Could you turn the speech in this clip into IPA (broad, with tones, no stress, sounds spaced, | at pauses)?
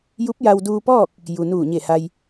j u˧˥ p̚ j a˧ w d uː˧ p ɔː˥˨ k̚ | j u˩ n uː˧˩ ɲ e˧˩ h a˧ j